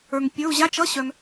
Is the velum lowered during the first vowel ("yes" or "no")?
no